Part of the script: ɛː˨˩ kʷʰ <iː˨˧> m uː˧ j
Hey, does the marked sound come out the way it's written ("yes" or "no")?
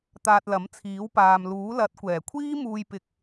no